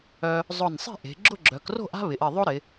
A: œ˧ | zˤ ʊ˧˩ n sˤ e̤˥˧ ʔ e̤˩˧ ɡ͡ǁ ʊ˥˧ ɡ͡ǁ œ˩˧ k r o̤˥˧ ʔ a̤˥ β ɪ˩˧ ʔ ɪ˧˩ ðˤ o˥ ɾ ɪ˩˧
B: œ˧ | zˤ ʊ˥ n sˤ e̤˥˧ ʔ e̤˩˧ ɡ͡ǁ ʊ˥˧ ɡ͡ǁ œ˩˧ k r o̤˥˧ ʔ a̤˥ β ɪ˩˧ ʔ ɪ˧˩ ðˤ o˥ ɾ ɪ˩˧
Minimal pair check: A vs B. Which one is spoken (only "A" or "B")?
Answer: A